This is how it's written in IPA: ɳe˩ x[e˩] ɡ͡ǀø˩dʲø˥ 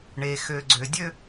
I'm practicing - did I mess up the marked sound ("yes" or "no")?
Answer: yes